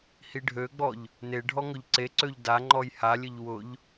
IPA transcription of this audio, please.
hiɖʱøɡ͡bɔʎ | neɖʱɔ ŋɵʎǀeǀøʎ da ŋ͡ǃɔjhalʲɘʎ wʊʎ

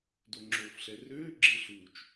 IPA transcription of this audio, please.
doŋ͡ǁoːfɬɛrøː ɡ͡ǁɪːɬuːt͡ʃ

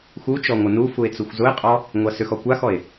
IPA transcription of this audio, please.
xut͡ʃɔ ŋʷənufue̯ t͡suxʷzʊe̯qʼɔ | ŋʷasʏxɔ kʷaxɔe̯

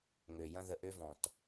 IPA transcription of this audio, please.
ŋø˨jɐ̃˦ ðə˨ʔø˦vɔ̃˨t

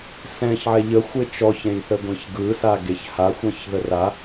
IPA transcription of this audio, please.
sɛ̃çʕɛ ʎəxʷe t͡ʃɔçẽjθəɡʷẽç ɡɯsaɡeç haxʷɛ̃çðə ra

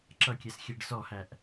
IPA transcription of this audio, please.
ǁʌkʲɛsxʲɛɖ sɔhæʔ

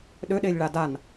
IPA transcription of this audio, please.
ɗøɗelʲ ɭadan

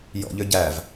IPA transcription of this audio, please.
jɔ̰ʎø ɟæv

